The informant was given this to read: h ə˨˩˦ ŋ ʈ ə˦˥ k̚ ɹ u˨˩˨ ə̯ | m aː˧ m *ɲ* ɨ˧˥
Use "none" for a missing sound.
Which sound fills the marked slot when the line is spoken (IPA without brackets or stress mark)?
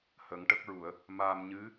ɲ